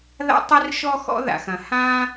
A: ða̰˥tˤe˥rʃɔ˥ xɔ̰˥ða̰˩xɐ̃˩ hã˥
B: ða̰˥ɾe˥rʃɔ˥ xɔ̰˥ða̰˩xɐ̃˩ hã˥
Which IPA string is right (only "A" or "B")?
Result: A